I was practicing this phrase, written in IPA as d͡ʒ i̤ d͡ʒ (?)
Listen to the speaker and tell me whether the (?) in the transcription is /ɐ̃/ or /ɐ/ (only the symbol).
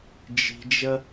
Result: ɐ